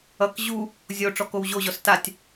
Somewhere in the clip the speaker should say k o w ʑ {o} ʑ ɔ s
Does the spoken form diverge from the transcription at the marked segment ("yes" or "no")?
no